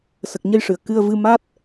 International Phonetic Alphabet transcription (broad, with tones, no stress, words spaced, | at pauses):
sə˨˩k̚ɲə˧jʂɨ˨˩˨ə̯ kɨ˧ə̯vɨ˧ ma˦˥t̚